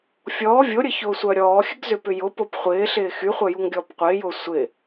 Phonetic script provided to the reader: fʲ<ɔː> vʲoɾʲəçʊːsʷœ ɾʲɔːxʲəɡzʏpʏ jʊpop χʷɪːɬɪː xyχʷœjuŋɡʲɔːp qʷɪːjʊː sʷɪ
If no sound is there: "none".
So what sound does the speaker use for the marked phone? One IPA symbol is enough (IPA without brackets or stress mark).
ɔː